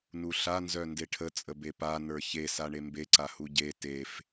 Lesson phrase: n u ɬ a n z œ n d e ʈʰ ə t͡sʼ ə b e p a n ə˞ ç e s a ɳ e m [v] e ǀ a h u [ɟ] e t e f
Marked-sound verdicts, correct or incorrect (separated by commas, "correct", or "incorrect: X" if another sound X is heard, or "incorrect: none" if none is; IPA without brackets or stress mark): incorrect: b, correct